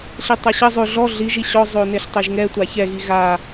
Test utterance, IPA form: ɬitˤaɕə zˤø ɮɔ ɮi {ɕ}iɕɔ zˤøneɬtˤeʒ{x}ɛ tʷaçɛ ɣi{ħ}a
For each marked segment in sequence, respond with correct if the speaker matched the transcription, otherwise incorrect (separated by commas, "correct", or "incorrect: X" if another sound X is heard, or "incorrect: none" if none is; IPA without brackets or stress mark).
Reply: incorrect: ʒ, incorrect: ŋ, incorrect: ɣ